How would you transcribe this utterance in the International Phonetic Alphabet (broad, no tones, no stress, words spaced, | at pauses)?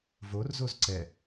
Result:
vorzoz ǀɛ